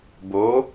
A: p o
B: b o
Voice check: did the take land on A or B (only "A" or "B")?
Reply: B